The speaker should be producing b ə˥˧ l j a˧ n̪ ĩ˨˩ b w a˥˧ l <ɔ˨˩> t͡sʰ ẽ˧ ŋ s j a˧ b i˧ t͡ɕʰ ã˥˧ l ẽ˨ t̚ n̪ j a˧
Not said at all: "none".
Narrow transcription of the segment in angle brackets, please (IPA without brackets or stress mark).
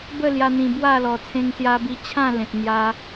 ɔ˨˩